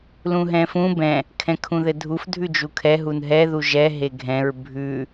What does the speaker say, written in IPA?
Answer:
lũɦɛ̃fũ bɛ̃ | kʰɛ̃kʰũðɘdʱuf dʱʉd͡ʒukʰɛ ɦunɦɛ ðuʒɛ ɦeɡʱɛ̃ɹ bʱʉ

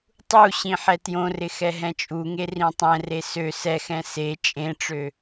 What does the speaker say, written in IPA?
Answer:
tˤu ɕĩħɛtjõrɪ xɛɦɛ̃t͡ʃʼuŋe rĩtˤɛ̃re sø sɛxɛ̃ se t͡ʃʼẽʈ͡ʂø

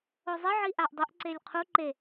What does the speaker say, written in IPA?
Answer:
ozˤɪʕi ʔaʔdˤʊʔǀelʲ qʰu ǃe

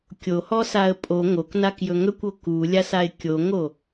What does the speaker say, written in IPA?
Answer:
kʲohɔsaə̯ pʼo ŋoknakjɵ ŋɵkʷo kulʲasaɪ̯ kʲoŋo

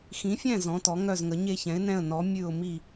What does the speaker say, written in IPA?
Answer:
xĩ˨˥fʲɛ̃˥˨ zɔ̃˨˥tɔ˨˥ŋœ˥˨zŋə˨˥ ɲe˥˨çɛ̃˨˥ɪ̯nɛ̃˥˨ə̯ nɔ˨˥ mʲʉ˥˨ʊ̯mi˥˨

